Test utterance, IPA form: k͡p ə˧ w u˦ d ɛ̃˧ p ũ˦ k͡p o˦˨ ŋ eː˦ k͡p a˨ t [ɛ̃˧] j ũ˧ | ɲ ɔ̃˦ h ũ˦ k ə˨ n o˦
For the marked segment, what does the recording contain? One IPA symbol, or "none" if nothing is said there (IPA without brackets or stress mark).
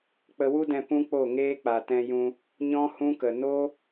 ɛ̃˧